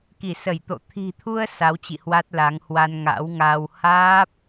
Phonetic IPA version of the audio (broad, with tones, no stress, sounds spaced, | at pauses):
k i˧˩ s ə˧˩ j t̪ o̰˧˨ t̪ʰ i̤˨˩ t̪ʰ u˧ ə̯ s a˨˦ w t͡ɕ ḭ˧˨ h w a˦˥ t̚ l a˨˦ ŋ h w a˧ n ŋ a̰˧˥ w ŋ a˧ w h aː˦˥ p̚